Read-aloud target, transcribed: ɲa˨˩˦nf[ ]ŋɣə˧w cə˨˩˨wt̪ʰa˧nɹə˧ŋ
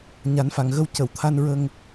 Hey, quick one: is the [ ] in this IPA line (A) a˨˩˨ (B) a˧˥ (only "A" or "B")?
A